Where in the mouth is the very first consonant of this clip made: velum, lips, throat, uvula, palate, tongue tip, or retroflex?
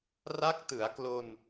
tongue tip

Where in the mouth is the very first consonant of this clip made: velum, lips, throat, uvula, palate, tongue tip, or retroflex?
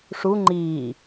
retroflex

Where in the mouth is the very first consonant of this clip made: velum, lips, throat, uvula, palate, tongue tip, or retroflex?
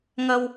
velum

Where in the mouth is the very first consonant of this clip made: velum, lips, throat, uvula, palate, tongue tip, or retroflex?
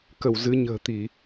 velum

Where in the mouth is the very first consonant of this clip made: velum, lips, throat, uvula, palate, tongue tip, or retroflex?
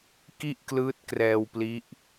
velum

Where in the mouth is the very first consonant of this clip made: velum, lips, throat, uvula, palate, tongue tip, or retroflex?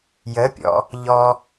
palate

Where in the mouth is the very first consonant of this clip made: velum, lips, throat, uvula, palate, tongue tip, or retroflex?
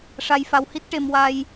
retroflex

